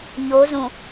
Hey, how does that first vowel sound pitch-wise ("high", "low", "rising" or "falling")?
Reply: rising